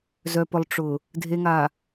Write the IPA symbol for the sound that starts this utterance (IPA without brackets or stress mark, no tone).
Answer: z